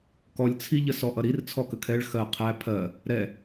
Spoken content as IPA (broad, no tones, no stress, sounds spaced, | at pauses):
k ɔ lʲ t͡sʰ i ʎ ə s ɔ ʔ ʌ ɾ i r t͡sʰ ɔ k ə kʰ ɛ ɭ x ɜ qʰ æ pʰ ɜ | ɾ ɛ